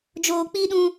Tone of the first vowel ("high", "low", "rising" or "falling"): low